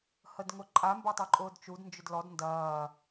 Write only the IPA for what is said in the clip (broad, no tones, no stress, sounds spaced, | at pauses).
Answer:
h ə d ŋ ʊ ǃʼ a m b ɐ tˤ ø ǃʼ ʊː d t͡ʃ u d n d͡ʒ ʊ d l ɔ d n d ɐː